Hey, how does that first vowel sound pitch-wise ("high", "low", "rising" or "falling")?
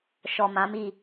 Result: low